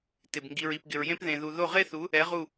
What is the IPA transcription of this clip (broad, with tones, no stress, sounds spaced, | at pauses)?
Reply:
t ɪ˩ b ŋ ɡ i˩ ɹ i˩ p ɡ ɪ˩ ɹ j ẽ˦ p ð ẽ˩ ð u˩ ð o˧˩ ʁ e˦ θ u˩˧ | ɛ˩˧ ʁ u˧˩